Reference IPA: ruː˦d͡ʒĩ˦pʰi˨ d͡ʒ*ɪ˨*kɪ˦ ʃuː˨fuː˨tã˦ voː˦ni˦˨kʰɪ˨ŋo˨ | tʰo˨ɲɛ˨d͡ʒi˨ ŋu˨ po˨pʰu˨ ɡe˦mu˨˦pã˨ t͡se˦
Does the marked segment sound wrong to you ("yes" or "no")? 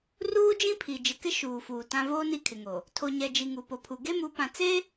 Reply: no